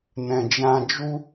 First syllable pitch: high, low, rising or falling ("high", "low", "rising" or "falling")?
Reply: low